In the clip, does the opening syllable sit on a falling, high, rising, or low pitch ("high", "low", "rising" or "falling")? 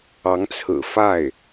rising